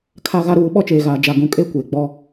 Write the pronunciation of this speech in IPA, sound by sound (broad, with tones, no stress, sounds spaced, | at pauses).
kʰ a˦ ɣ a˦ ɾ uː˨˦ ɓ ɔ˦ t͡ʃ eː˨ ɣ aː˨ d͡ʒ a˨ ɡ ũ˨ kʼ e˦˨ kʷ eː˨ ɡ͡b ɔ˦